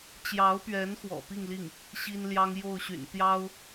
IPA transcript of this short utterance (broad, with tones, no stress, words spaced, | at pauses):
t͡ɕjɑ˧˥ʊ̯pɥɛ˧˥n xwɔ̰˨˩pi˥˧ŋli˥˩ŋ | ɕi˥n ljɑ˥ŋ jo˥˩ʊ̯ɕy̰˨˩n t̪jɑ˥ʊ̯